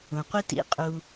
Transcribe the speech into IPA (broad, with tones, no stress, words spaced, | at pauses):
ũ˨qʷi˦ tḭ˦ qʼu˦